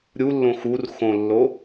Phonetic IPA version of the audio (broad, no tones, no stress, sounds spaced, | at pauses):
ɾʲ u lː õ x u r x õ lː o